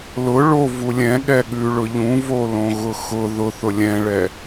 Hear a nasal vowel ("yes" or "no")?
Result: yes